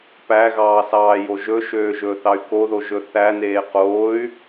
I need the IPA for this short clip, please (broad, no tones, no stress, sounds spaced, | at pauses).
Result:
p æ ɣ ɑː s ɑː j o ʒ ɵ ʃ øː ʒ ɵː θ ɑ y̯ k o ð o ʒ ɵ θ æ n eː q oː y̯